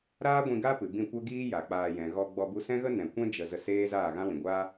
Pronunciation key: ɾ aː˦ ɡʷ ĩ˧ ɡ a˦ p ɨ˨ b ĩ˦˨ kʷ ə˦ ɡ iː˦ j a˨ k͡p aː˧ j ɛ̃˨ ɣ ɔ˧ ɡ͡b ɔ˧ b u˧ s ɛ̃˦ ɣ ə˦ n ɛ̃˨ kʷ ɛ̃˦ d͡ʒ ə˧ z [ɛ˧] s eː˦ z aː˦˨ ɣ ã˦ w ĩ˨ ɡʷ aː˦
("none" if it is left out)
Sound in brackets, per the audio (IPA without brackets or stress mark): ə˧